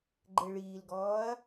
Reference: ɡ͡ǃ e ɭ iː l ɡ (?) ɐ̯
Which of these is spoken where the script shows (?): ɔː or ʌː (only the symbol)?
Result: ɔː